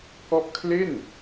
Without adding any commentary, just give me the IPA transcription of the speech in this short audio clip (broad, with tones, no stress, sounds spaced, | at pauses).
k ɔ˦˥ ʔ kʰ l e˥˩ n